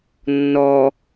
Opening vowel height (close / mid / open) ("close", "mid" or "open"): mid